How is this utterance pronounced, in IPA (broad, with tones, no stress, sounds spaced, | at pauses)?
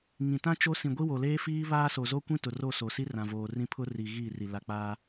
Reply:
ŋ ĩ˨ t ã˦ t͡ʃ o˦ s ĩ˨ ɡʷ i˦ w o˨ l eː˦ f iː˦ β aː˦ s o˨ z o˦ kʷ ĩ˦ t ʊ˨ r o˦˨ s o˨ s i˦ r ã˨ v oː˨ r ĩ˦ pʰ ʊ˦ r i˨ ɣ iː˦˨ r i˨ l a˨ k͡p aː˦